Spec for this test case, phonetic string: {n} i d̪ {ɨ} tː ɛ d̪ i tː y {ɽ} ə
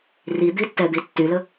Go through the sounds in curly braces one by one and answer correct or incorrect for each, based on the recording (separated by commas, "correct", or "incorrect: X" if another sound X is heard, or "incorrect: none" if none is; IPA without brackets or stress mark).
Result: incorrect: r, incorrect: i, incorrect: l